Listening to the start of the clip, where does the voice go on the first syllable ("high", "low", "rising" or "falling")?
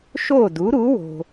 falling